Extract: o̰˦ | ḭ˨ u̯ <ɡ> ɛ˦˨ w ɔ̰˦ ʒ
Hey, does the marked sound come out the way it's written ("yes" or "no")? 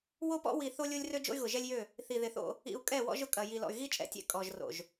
no